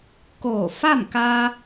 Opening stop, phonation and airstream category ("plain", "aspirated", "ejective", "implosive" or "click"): plain